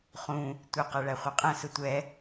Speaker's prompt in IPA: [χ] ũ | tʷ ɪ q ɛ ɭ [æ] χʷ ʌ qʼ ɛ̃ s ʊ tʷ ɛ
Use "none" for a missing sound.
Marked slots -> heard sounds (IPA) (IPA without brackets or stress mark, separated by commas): χ, æ